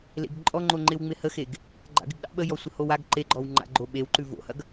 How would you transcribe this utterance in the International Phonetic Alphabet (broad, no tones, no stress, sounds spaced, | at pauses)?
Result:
l ḛ ɡ ǃʼ ɔ ŋ͡ǃ o ŋ͡ǃ ɪ w ŋ͡m ɪ h ə x e ɡ | ɡ͡ǃ a̰ ɡ ɪ ɡ ɗ ɑ̰ ɓ ə j ɔ sʷ ə h o w a ɡ ǃ e ɡ͡ǃ ɔ w ŋ͡ǃ a̰ ɡ͡ǃ o ɓ e w ǃ ʉ v o̰ h ɐ ɡ